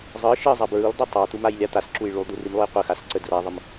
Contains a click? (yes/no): yes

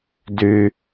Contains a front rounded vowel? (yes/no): yes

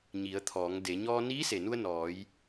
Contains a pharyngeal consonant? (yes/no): no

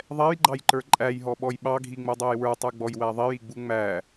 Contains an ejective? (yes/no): yes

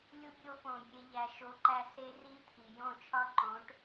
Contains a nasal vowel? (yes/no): yes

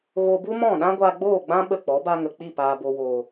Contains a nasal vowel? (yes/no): yes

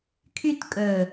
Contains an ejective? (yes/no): yes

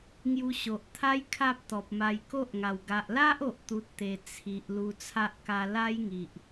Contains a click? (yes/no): no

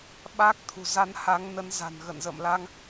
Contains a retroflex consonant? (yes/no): no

